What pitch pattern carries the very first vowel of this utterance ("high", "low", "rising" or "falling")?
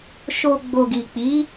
low